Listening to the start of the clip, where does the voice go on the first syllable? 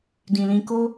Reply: low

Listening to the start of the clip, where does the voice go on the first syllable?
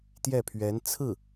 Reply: falling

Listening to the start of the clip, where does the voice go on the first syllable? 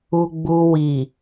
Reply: low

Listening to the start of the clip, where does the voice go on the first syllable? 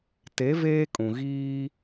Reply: rising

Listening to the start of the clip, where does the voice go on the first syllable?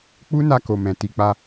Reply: high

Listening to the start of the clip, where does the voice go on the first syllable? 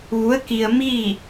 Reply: rising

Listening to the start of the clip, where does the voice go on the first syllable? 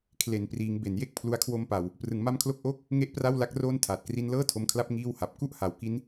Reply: low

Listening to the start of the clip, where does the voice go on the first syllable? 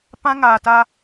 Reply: high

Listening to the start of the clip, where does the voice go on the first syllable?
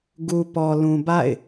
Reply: low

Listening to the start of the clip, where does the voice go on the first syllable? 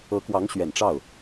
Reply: rising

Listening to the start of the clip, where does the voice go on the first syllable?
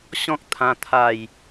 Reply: high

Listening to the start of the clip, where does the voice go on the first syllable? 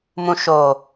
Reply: low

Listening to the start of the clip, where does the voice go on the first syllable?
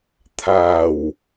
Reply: low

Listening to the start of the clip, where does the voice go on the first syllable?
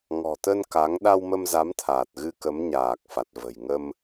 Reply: low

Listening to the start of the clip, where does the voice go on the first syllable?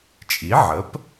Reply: rising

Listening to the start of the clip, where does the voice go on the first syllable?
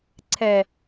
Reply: low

